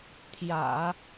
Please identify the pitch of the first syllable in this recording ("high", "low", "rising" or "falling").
low